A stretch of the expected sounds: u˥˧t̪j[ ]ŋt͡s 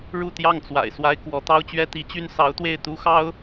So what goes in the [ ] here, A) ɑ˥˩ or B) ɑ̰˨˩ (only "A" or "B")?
A